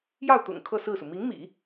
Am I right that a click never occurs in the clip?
yes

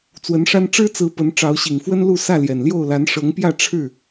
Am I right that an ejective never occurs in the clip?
yes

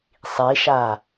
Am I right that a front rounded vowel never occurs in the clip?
yes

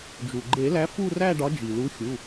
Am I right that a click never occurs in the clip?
no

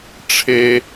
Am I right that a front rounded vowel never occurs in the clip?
yes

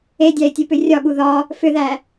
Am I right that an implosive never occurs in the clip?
no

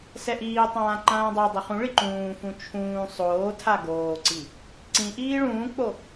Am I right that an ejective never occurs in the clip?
yes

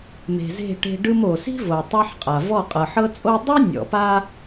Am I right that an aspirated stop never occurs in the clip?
yes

